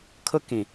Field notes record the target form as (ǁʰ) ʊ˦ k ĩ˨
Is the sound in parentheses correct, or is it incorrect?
incorrect